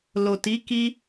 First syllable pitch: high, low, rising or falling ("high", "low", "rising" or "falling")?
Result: low